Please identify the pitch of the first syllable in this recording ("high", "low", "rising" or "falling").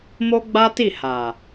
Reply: high